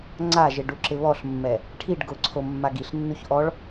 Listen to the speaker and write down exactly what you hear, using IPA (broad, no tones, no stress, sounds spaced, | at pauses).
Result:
ŋ͡ǀ a ʒ ɪ ɖ u ǁ ɪ β ɔ ɬ mː ɛ | ʈʰ i ɖ ɡ ʊ ǀʰ o mː a ɡ i ɬ nː u ç ʔ ɔ ɭ